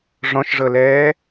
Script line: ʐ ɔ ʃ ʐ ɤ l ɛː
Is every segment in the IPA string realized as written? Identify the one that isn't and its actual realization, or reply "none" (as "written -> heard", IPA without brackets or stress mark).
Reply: ɔ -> ɔ̃